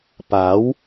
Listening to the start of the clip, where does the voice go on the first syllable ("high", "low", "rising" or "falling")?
rising